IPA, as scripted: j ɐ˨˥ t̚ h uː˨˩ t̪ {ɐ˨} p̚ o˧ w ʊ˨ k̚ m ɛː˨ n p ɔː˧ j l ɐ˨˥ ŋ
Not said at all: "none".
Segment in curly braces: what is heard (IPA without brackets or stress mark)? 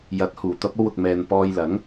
ɐ˧